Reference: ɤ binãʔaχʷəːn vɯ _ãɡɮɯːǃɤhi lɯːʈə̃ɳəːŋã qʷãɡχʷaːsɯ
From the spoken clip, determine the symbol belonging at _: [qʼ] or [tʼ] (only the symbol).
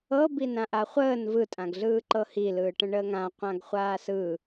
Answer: tʼ